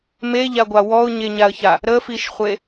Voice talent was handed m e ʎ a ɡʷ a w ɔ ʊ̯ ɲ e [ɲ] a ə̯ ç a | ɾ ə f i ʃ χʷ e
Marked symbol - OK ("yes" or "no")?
yes